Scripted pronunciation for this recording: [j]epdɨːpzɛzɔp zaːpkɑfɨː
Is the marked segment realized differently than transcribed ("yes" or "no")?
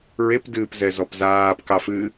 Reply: yes